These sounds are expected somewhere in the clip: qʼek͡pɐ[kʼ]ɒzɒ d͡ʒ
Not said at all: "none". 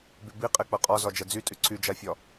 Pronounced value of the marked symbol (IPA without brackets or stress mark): qʼ